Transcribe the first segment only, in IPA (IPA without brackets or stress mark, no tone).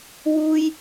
w